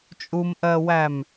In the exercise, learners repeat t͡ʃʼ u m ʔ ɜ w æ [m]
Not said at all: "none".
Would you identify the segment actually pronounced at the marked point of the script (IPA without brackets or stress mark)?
m